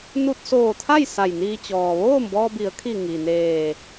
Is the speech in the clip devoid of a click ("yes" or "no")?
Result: yes